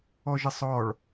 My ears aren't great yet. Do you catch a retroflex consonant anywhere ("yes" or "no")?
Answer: yes